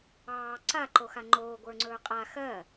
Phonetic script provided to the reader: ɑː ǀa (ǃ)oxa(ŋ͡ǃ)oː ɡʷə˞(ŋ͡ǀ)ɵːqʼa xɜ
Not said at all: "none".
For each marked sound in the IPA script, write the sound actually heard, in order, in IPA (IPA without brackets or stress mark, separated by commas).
ǃ, ŋ͡ǃ, ŋ͡ǀ